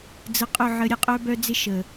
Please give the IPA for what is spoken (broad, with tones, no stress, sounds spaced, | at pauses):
d͡z ə˧ qʼ ʊ˦˨ ʕ ə˨˦ ɾʲ ə˨ qʼ œ˦ b œ˦ d͡z ɪ˦ ʃ ə˨